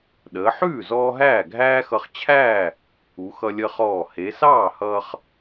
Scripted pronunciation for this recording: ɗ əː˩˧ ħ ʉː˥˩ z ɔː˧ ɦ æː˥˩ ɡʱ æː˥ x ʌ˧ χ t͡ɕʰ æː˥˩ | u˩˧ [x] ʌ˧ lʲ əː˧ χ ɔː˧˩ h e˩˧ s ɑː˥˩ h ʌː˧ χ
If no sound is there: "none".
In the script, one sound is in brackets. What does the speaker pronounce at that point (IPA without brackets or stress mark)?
x